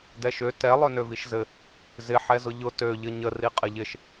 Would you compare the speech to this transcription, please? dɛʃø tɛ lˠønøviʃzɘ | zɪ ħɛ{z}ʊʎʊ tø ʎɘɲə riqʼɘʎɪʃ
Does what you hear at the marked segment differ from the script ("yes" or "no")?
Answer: no